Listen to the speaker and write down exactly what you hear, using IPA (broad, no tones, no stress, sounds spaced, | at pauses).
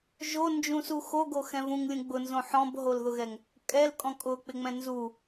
ʒ o n d͡ʒ ũ s u x o ɡ o x ɛ̃ v ũ ŋ lʲ ũ ɡ͡b ʊ n z õ ħ ɔ̃ b ɦ o l ð ʊ ɣ ɛ ŋ | kʼ ɛ l kʼ ɔ̃ kʼ ʊ k͡p ɪ ŋ͡m ɛ̃ n z u